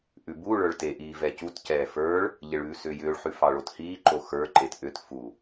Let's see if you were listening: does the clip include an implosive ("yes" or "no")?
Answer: no